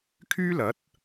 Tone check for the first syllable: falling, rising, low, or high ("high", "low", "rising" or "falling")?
high